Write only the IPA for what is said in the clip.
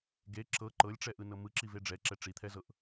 ɡe ǁɤ ǃɤlʲʈ͡ʂɛʔɯnɤ mɯǁive ɖ͡ʐɛǁɛ ʈ͡ʂit̪ʰɛzɤʔ

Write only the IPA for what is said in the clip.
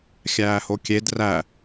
xʲæːhokʲed ræ

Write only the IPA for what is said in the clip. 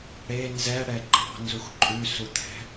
ɽe nzɛɽɛ ǃɑ̤nzux ǃʼʉsut̪ʰɛ̤

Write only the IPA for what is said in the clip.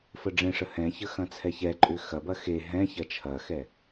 fəɖ͡ʐẽʂə hɛ̃çə xɐ̃t͡sʰɛçɛǃʼʏ xɐbɐ xe ɦɛ̃ çɐt͡ʃʰɐxɛ

